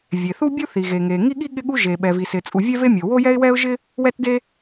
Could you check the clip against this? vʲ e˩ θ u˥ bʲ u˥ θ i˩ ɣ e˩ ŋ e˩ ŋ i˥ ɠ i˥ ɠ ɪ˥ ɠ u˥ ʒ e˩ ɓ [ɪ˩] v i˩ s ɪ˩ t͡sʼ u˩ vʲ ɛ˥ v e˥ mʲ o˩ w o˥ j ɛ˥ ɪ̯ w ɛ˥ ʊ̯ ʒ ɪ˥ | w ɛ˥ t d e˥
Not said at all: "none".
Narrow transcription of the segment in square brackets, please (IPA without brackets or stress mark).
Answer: ɛ˩